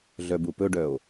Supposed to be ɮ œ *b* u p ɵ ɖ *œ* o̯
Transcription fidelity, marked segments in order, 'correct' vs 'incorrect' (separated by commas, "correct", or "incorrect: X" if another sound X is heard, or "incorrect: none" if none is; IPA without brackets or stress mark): correct, correct